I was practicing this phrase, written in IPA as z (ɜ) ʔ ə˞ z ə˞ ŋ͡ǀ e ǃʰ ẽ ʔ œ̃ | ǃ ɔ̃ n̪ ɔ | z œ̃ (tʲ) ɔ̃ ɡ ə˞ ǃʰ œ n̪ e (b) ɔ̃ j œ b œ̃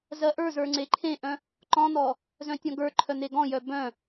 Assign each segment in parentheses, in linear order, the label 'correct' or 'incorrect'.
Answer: correct, correct, incorrect

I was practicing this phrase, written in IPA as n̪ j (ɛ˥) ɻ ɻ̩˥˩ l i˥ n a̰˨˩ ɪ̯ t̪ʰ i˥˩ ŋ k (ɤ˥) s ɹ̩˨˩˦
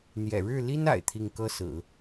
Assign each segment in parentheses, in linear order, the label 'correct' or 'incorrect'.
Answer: incorrect, correct

